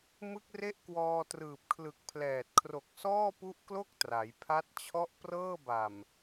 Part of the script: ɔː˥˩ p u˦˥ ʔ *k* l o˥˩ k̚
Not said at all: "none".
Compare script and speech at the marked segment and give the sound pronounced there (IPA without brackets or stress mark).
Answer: k